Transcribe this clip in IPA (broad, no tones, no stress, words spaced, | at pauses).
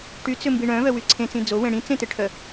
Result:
ʈyt͡sʏmbi ɳœ̃vœwy ǀʰẽt͡sĩ d͡zowẽ ɽĩt͡sẽteʈʰœ